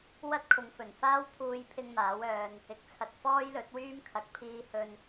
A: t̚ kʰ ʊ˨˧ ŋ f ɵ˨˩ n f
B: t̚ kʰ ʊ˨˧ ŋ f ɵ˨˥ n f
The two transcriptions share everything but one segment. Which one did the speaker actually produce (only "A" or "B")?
A